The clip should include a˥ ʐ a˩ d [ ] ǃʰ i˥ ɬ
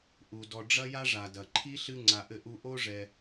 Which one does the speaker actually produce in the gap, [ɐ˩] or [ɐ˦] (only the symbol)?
ɐ˩